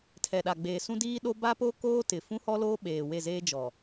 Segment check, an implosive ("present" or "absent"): present